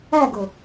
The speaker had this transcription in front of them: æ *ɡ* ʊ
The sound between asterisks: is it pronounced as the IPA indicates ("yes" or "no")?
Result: yes